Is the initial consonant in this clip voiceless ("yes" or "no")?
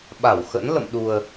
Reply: no